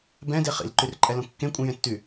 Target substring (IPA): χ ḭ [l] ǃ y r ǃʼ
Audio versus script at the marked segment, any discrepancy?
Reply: no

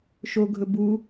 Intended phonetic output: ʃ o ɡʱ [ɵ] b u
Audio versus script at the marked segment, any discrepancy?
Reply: no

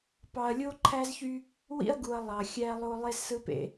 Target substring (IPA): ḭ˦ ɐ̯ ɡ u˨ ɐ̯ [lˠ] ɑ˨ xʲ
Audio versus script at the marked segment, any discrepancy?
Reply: no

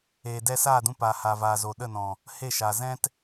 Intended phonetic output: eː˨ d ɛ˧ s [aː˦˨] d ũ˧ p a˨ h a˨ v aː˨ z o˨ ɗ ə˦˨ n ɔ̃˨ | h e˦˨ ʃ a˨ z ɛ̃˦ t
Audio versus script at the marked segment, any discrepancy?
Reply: no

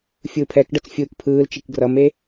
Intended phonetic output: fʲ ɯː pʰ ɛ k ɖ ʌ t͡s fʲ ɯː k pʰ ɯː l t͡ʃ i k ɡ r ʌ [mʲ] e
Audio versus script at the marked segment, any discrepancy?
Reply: yes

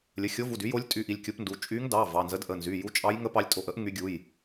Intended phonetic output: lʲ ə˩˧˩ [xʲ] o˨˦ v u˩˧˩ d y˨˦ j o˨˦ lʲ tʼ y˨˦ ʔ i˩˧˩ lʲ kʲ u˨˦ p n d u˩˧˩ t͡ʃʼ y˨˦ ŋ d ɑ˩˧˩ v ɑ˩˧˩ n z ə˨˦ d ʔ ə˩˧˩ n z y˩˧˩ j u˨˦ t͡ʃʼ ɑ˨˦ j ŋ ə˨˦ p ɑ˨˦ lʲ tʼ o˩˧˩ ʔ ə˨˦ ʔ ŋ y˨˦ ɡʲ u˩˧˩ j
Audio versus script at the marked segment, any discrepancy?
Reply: no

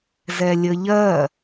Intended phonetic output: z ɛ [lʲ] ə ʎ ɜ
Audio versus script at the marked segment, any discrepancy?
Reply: no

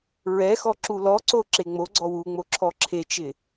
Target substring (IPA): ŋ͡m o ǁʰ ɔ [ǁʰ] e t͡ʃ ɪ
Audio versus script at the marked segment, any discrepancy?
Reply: no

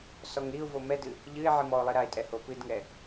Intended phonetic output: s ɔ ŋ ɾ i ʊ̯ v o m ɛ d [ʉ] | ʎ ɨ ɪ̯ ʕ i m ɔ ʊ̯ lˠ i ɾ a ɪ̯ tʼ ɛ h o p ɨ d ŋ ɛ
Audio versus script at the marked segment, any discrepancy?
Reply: yes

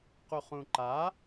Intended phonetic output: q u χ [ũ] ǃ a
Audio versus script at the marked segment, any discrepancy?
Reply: no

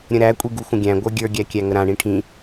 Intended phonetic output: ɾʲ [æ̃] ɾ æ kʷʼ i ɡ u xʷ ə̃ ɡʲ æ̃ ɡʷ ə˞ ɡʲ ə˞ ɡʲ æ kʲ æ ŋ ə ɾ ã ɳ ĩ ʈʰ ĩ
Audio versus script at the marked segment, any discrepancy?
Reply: yes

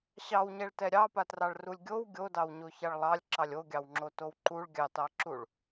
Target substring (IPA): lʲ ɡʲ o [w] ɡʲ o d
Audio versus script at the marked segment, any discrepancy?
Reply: no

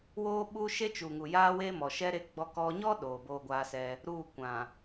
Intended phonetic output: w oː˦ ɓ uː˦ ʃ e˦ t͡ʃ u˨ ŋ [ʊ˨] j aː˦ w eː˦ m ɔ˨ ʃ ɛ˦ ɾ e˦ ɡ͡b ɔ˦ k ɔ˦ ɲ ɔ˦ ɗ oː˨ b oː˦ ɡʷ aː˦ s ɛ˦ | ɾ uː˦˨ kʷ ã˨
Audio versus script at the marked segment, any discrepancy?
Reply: yes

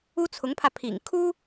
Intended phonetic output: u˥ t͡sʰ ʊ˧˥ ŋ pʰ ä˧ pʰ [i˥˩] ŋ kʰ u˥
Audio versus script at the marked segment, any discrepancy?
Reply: yes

